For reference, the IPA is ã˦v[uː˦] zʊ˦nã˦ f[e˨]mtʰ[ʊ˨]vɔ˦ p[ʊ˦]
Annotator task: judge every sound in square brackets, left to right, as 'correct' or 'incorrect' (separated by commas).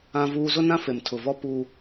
correct, correct, correct, incorrect